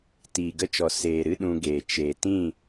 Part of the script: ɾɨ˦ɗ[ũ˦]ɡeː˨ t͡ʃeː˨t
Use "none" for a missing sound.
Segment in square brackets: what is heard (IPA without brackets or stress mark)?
ũ˧